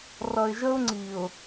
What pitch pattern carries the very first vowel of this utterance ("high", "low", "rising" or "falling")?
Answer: low